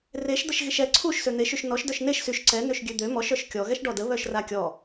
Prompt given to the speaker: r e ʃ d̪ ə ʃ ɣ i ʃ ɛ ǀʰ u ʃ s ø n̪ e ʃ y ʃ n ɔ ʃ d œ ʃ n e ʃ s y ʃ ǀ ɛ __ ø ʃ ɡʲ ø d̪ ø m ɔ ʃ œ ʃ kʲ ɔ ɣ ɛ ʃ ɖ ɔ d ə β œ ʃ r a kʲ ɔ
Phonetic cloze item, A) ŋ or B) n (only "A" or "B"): B